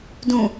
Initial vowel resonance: nasal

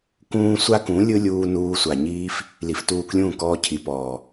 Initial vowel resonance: nasal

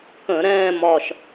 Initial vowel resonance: nasal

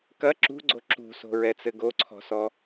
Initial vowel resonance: oral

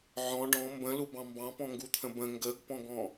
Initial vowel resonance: nasal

